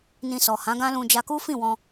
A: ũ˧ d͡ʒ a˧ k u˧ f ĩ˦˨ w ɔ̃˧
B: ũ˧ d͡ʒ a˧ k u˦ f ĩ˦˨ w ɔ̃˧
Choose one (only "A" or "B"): B